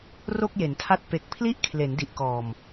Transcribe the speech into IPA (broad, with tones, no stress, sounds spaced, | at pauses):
r o˥˩ k̚ j e˩˦ n tʰ a˥˩ t̚ p e˨˩ k̚ pʰ l i˥˩ ʔ kʰ l e˩˦ n d i˨˩ ʔ k ɔː˨˩ m